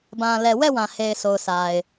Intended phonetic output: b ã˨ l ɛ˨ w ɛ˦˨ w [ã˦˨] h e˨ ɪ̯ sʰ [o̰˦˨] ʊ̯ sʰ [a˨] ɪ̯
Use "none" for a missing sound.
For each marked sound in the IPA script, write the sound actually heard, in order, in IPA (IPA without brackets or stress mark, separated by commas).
ã˨, o˨, a˨